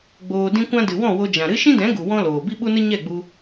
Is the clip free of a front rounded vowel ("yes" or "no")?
yes